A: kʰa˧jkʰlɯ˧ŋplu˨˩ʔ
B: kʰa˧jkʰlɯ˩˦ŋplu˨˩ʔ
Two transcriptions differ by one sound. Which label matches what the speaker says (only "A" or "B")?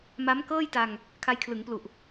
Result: B